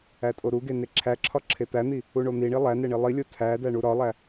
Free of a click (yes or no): no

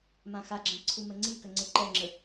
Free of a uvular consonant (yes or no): yes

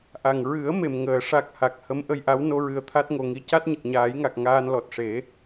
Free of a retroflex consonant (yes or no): no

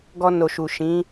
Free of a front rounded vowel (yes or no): yes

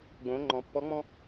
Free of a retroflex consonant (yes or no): yes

